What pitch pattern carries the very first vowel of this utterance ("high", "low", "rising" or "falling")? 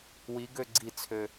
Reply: rising